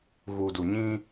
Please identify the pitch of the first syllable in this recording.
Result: low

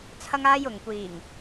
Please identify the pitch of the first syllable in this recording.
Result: high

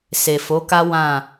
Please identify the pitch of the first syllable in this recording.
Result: low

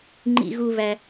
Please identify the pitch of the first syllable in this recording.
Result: high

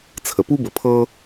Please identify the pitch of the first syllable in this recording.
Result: low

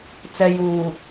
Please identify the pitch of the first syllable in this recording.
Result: high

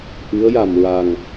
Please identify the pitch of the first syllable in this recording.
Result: rising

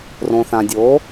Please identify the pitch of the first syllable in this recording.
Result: low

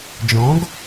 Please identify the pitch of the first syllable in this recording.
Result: rising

